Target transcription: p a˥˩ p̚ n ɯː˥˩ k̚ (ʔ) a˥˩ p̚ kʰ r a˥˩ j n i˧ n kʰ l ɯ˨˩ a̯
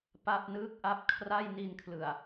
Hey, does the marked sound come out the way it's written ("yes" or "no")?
yes